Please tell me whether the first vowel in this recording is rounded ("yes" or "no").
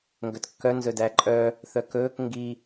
yes